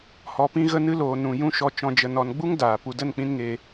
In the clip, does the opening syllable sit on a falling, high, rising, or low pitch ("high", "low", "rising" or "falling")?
low